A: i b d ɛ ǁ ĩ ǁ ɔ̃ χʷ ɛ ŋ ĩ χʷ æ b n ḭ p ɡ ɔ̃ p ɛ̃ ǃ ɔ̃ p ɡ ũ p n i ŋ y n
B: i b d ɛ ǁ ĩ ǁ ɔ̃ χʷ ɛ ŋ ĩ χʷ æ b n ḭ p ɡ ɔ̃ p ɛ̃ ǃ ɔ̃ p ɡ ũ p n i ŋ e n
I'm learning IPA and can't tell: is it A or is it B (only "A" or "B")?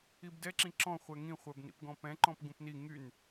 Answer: A